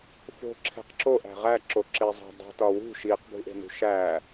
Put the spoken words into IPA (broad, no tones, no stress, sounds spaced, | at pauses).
f o̤ ǁʰ e̤ q ǁ o ʔ æ̤ ʁ æ ǁ o ǁ e zˤ æ̤ dˤ e̤ t ɒ w ṳ ʃ i q b ṳ ʔ e̤ n ṳ ʃ æ